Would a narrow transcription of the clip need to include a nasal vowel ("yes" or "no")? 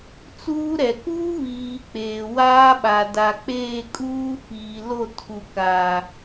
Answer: no